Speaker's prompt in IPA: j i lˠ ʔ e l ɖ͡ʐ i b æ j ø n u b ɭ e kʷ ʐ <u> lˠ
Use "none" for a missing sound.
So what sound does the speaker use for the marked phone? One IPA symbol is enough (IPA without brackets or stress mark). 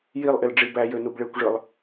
ɯ